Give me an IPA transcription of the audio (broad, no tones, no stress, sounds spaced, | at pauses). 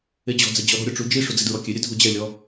e d͡ʑ ɔ̤ d͡z ɛ d͡ʑ ɔ ɾ ɔ̤ ɾʲ ɔ ʈ͡ʂ u d͡ʒ i ʂ u d͡z i d ɹ ɔ kʲ e ɾʲ ɛ dʱ u d͡ʑ ɛ lʲ ɔ